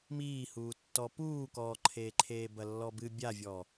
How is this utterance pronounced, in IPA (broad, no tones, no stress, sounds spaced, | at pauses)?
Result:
m iː h uː tː ɔ p uː k ɔː ǃʰ eː ǃʰ eː b ɐ lː ɔ b ɨ bʲ a vʲ ɔ